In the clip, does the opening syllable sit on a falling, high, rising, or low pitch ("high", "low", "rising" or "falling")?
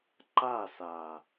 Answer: falling